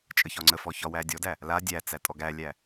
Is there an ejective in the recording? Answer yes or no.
yes